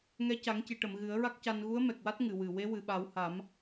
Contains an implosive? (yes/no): yes